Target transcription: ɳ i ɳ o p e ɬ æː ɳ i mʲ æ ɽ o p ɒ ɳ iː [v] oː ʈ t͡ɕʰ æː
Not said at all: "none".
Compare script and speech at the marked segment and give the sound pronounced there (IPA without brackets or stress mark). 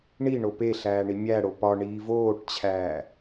v